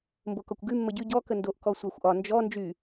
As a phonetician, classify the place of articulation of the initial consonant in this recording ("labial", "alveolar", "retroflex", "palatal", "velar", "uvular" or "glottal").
labial